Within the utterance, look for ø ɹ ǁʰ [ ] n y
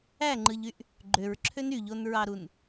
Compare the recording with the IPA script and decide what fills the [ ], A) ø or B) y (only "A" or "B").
A